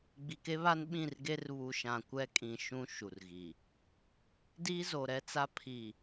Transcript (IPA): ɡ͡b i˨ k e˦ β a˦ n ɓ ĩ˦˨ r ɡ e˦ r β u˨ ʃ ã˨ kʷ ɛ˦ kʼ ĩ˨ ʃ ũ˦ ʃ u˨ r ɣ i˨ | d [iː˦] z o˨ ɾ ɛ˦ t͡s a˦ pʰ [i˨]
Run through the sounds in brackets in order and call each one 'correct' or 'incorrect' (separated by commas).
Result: correct, correct